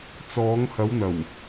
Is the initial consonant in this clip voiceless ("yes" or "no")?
yes